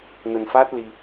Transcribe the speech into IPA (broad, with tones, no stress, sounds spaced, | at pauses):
n ə˧ n f a˦˥ t̚ l i˧